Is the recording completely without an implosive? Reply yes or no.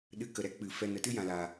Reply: no